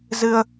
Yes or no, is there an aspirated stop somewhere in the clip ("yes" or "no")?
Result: no